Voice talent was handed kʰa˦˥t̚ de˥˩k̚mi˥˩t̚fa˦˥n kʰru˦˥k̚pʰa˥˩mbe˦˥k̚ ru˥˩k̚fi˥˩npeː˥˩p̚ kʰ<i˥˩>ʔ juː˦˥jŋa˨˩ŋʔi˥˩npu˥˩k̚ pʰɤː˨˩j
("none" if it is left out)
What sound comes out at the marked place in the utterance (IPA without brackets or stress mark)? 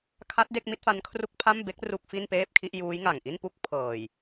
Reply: i˥˩